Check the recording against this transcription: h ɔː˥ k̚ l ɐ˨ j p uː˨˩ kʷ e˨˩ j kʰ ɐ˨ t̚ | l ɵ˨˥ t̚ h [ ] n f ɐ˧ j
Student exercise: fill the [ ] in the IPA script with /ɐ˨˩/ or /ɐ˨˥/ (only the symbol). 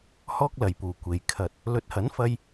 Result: ɐ˨˥